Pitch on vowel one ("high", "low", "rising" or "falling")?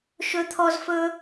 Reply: high